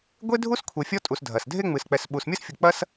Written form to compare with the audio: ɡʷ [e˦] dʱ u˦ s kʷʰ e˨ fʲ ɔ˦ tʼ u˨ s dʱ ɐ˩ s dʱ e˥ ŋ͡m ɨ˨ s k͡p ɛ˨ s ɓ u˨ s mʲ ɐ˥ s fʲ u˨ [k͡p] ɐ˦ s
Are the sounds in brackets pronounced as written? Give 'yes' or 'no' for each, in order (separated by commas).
yes, yes